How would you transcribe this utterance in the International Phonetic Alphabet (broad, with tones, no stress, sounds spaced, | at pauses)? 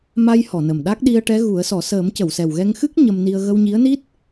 m a˧ j h ɔ˨˩˨ n ə˨˩ m ɗ a˦˥ k̚ ɗ i˧ ə̯ ʈ ɛ˧˥ ɣ u˨˩˦ ə̯ s ɔ˨˩˦ s əː˨˩˦ m c ə˨˩˨ w s ɛ˨˩ w ɣ ɛ˧ ŋ x ɨ˦˥ k̚ ɲ ə˧ m n i˧ ə̯ ɣ ə˧ w ɲ i˧˥ ə̯ n i˦˥ t̚